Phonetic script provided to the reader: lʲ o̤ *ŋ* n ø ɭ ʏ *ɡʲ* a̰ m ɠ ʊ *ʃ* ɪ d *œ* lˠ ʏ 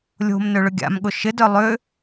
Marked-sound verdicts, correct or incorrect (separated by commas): incorrect, correct, correct, correct